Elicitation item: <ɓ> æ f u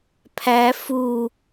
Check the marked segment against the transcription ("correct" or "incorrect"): incorrect